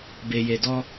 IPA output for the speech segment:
b e˨ j e˨ d ɔ˧

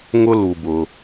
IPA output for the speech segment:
ŋ ʊ˧ l u˩ b ʊ˩

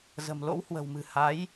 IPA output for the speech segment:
z ə̤˨˩ m l o̰˧˥ w h w ə̤˨˩ w m ɨ̤˨˩ h a˨˦ j

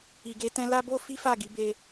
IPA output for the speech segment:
i˨ ɡ e˧ t ɛ̃˧ l a˦ b o˦ f i˦ f a˦˨ ɡ i˨˦ b e˦

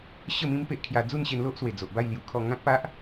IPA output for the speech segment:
ɕ ə˥˧ m ĩ˦ m p e˦ ʔ kʰ j a˧ d͡z u˥˧ n ɕ e˧ n l o˦ ʔ s w e˨˩ d͡z o˨ ʔ b a˥˧ j l j u˨˩ kʰ ɔ˥˧ ŋ ã˦ k̚ p a˦ ʔ

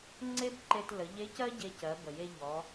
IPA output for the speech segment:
ŋ͡ǀ e˥ b ǃ e˧ t l ə˩˧ ʎ e˧˥ c ɜ˥ ɟ e˧ c ɜ˩˧ b ə˩ j e˧ ʎ ɔ˩˧

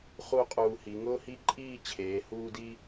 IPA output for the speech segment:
χ u˥˧ qʼ uː˧ h i˩˧ ŋ ʊː˥ h i˥ ǃʼ iː˥˧ t͡ɕʰ eː˩˧ h uː˧ d i˧

